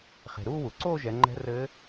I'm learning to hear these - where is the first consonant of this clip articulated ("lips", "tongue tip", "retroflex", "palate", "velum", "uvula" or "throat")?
uvula